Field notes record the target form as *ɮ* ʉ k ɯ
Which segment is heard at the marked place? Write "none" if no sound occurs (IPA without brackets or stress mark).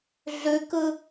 ɮ